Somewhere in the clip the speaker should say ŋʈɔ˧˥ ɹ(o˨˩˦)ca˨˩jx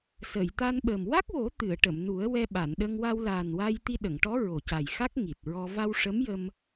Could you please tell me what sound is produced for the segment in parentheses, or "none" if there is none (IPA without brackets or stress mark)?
o˨˩